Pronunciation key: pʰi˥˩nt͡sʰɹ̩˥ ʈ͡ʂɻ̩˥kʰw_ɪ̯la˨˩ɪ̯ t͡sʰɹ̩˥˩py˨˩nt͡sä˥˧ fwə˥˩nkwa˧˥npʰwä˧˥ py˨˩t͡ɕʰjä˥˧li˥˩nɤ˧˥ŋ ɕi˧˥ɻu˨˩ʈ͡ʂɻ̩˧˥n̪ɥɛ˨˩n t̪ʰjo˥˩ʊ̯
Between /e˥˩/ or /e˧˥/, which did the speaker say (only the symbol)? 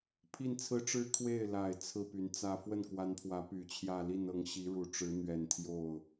e˥˩